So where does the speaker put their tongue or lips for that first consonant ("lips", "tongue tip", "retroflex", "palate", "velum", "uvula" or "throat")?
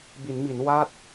lips